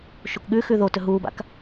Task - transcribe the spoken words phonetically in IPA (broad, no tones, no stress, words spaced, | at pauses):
ʃukɠʉxʉ ðo tɵɦuːba̰k